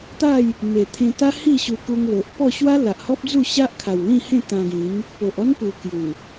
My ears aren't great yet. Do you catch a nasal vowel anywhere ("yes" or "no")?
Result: yes